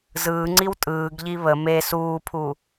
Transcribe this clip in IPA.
z ɯː ŋ͡ǀ i w tʼ ɯː ɡ ʎ i β ə m e s uː pʰ u

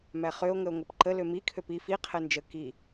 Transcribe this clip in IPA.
m æ χ ø o̯ ŋ ə o̯ ŋ o p ǃ ə l ø m i kʰ ø p i f i qʰ ɛ n d͡ʒ ə k i

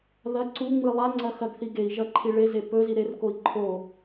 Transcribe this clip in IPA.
ð ɐ ǀ u ŋ͡m ɨ lˠ a ŋ͡ǀ ɐ x ɐ ɡ θ i ɡ e i̯ ʒ ɐ ǃʰ i ɭ e z e p ɵ z i ɾ e r k o i̯ ǃʰ o

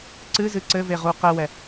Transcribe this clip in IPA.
ǀ ɨ z ɨ ǀ ɘ v e ʁ u q ɛ w ɛ

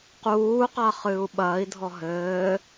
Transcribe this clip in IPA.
q uː q a χ ɨː u̯ ɓ ɐː i̯ dʱ ɔ ɦ ɘː

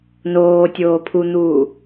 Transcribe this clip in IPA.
n oː tʲ oː pʰ u n̪ uː

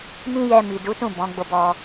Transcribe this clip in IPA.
m ĩ˦ j ɛ˧ m i˨ d u˨˦ t ũ˦˨ b ɔ̃˨˦ ɡ͡b o˦˨ b ɔ˧

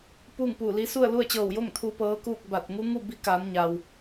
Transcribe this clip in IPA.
p uː˥˨ ŋ p uː˧˩ l i˧˥ s u˥˨ ə̯ l u˥˨ ə̯ t͡ɕ ɤː˧˩ w j o˥˨ ŋ t̪ʰ u˧ p ɤː˧˥ k uː˥˨ k̚ b a˧˩ t̚ ŋ u˧˥ ŋ u˥˨ b i˧˥ k aː˩˧ n ɲ aː˩ w

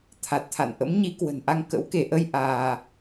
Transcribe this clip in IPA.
t̪ʰ a˨˩ t̚ t̪ʰ a̰˧˨ n ʔ ə̰˧˥ m ɲ i˨˦ k w ə̤˨˩ n ʔ a˧ ŋ k ə̰˧˥ w k e˧˩ ʔ ə˧ j ʔ aː˧

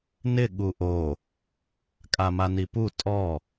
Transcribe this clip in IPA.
n ɪ ɠ u ʔ o | kʼ a m a n i p u tʼ ɔ

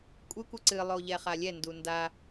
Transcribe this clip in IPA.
kʷʼ ɨ kʷ ɨ ǀ ɨ lˠ o ʎ ɛ χ a lʲ ɛ n d u n d a

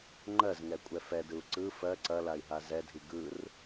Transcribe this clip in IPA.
ŋ͡ǃ ɜ z ŋ ɛ kʷʼ ɛ f ɛ d ɯ u̯ ǀ ɯ f ɜ ǀ ɐ l a i̯ ɦ a z ɛ dʱ i ɡ ɯ r

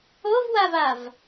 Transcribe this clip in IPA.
o v w a v a v

